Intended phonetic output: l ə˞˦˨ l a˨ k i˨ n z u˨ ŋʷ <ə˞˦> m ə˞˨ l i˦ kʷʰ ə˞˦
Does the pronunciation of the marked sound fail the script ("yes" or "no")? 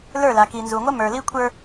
yes